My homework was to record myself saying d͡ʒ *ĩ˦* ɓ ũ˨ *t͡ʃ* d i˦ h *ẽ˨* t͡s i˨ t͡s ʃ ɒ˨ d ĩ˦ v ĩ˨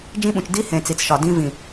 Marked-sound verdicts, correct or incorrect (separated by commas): correct, correct, correct